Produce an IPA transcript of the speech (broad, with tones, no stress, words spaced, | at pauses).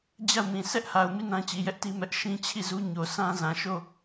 d͡ʑa˦˨ʊ̯mĩ˨ sʰɛ˦ʔha˨ʊ̯mi˦˨ nã˦t͡ɕi˨jɛ˦ʔti˦ mɛ˦ʔ ʃĩ˦t͡ɕʰi˦˨zu˦ ɲo˨sã˦zã˨ʃo˦˨